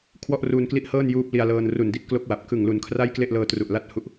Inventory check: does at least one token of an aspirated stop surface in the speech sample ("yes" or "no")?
yes